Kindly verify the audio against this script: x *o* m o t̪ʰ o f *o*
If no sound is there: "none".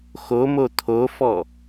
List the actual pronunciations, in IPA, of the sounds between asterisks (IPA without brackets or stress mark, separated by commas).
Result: o, ɔ